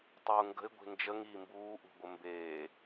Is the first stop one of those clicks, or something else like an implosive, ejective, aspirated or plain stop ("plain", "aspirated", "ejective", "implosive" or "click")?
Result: plain